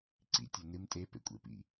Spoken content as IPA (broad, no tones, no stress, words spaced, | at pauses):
ǀḭtʲo nɨm tʼepḛkʷʼḛpḭ